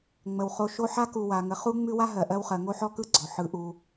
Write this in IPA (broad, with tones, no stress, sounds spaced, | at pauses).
ŋ͡m ə˩ w χ o˨ ʃ o˦ ħ a˥ k u˨ w a˩ ŋ ə˨ χ u˦ ŋ͡m ʉ˦ w a˥ ɦ ɜ˩ ʔ ɜ˥ w χ ɜ˨ ŋ o˥ ħ ɔ˥ k ɯ˥ ɡ͡ǀ ɔ˩ ħ ɯ˨ ʔ u˨